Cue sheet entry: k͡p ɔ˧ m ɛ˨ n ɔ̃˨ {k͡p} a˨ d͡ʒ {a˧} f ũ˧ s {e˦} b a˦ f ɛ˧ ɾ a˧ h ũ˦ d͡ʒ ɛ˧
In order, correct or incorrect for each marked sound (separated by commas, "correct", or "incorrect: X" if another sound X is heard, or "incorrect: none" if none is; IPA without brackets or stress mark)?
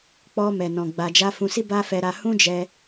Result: incorrect: ɡ͡b, correct, incorrect: i˦